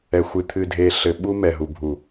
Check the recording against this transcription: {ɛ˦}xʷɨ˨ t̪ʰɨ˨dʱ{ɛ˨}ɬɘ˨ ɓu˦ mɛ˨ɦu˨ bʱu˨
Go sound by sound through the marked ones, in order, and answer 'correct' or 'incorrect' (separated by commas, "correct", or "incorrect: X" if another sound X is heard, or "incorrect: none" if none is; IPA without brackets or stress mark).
incorrect: ɛ˨, incorrect: e˨